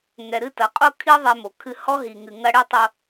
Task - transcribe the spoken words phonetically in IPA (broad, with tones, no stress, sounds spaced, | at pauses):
ŋ ɛ˨ ɾ ɨ˦˨ t ɐ˨˦ qʼ o˦ kʰ i˦ ðˤ ɛ˦ m o˨ kʰ ɨ˦ h ɔ˦ ɦ i˨ ŋ ɨ˨ ŋ ɐ˦ ɽ ɨ˦ tˤ o˦